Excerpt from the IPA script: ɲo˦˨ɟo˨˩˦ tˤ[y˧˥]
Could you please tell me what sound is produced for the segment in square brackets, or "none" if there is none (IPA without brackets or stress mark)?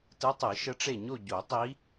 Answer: i˧˥